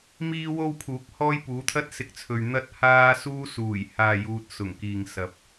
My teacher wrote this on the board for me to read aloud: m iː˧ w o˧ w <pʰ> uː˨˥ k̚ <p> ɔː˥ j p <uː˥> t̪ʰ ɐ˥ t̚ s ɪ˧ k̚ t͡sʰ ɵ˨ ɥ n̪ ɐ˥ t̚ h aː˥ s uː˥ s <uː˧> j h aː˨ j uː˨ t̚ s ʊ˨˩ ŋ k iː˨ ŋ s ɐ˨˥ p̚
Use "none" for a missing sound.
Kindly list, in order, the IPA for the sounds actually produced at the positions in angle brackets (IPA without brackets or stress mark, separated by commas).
pʰ, h, uː˨˥, uː˨˩